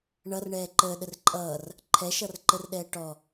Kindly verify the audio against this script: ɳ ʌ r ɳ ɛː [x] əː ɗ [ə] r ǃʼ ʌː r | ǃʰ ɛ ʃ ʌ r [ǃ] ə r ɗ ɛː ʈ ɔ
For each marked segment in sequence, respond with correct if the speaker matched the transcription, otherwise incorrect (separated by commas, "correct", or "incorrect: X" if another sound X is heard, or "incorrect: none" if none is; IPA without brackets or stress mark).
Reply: incorrect: ǃ, correct, correct